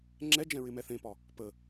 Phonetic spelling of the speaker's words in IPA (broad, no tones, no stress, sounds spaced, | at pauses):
ŋ͡ǁ ɛ d͡ʒ ɛ̃ ɹ ɪ m ɛ θ ẽ p ɒ | p ə